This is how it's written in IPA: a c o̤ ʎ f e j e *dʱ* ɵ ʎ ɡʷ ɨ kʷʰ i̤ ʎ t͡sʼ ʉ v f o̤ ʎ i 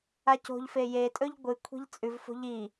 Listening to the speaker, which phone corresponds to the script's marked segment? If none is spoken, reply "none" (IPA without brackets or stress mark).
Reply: tʼ